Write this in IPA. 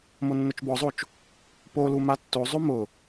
monːʊt͡ʃbɔzˤot͡ʃ | polu matːozˤo mʊ

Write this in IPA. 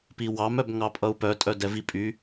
piwɑmœb ŋɑpʼʌu̯pœtʼœ dɛvipʼy

